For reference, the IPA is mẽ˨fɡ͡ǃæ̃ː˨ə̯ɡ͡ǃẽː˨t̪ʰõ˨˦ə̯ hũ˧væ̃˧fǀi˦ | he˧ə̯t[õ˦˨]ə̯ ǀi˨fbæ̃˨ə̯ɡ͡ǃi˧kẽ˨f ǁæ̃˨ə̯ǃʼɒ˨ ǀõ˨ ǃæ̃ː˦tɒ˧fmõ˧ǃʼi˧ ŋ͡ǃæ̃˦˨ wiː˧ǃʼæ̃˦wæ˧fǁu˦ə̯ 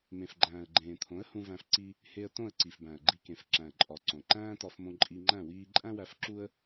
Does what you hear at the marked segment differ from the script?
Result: no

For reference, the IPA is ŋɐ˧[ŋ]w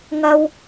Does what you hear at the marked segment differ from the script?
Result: yes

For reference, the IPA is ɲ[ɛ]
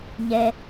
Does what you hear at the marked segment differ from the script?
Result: no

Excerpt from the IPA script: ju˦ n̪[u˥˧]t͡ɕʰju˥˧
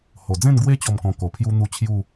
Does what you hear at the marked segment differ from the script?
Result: no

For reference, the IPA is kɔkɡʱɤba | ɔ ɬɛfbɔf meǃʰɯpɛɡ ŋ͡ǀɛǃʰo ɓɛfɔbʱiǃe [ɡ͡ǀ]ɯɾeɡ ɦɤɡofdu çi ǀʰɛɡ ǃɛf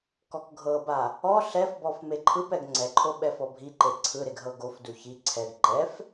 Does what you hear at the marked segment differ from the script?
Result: yes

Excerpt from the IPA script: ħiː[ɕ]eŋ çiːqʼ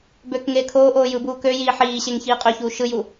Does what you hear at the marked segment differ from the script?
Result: no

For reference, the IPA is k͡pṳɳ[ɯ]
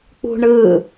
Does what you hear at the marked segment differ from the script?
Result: no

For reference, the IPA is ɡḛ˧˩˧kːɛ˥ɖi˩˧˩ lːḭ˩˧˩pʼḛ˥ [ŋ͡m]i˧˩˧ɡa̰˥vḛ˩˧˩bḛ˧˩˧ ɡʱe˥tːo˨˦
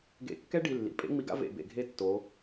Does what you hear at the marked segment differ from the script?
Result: no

